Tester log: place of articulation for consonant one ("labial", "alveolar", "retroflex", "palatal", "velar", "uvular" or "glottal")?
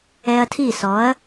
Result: alveolar